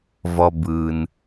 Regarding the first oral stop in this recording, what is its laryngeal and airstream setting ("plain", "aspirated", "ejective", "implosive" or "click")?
plain